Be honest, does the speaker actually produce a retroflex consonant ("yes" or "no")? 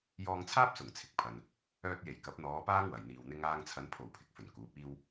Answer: no